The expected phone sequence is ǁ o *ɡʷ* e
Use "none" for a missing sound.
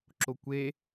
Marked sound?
kʷ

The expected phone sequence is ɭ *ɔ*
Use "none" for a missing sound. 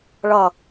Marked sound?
ʌ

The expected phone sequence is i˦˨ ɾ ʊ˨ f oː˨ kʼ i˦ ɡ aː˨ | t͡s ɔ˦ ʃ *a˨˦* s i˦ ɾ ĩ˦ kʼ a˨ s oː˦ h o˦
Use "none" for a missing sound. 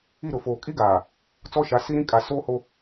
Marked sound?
a˨˦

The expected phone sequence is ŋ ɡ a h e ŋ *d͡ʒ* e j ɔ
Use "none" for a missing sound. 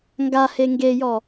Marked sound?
ɡ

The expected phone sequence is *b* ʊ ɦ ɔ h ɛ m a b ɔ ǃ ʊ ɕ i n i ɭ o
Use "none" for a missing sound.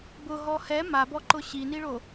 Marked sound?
b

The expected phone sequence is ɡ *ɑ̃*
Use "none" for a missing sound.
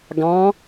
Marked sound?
ɑ̃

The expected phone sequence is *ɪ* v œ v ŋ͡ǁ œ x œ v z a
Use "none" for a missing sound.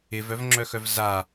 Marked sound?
ɪ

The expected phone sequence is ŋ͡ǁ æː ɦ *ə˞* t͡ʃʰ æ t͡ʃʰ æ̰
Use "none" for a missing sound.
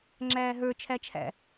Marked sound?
ə˞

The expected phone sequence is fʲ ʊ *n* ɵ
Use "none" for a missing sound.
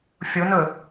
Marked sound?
n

